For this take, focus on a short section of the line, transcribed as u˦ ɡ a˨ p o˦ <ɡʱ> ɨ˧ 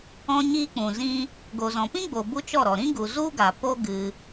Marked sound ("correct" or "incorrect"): incorrect